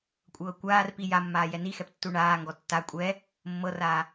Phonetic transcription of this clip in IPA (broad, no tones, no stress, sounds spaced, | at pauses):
kʷʼ ɤː kʷ aː r p i j a mː aː j ɛ n i x ɛ p tː u ɳ aː ŋ ɡ ɔ tː a kʷʼ ɛː | mː ɤ r aː